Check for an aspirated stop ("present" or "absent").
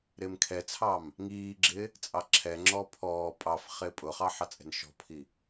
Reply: present